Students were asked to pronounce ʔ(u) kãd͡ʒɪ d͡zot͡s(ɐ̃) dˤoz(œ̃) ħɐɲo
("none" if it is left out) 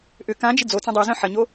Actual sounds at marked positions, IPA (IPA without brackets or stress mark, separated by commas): ʏ, ɐ̃, œ̃